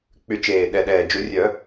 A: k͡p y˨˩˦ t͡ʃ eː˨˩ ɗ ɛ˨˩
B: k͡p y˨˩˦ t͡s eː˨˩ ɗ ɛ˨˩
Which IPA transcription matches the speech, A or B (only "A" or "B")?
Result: A